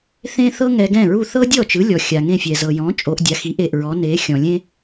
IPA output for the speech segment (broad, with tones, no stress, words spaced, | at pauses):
θẽ˥ θɤ˥ŋɛ˧ɡɛ̃˥˩ɹu˥˩ θɤ˥dʲɔ˥˩t͡ʃɯ˩˥lʲɔ˩ xʲa˩ŋẽ˥˩fʲɛ˩zɤ˩ jɔ̃˩˥ t͡ʃʼo˩˥ʔdʲa˩˥xi˩˥ʔe˩ʔ ɹɔ˩˥ ne˩˥xʲɔ̃˩lʲẽ˥